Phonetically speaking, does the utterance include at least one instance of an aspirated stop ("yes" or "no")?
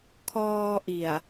yes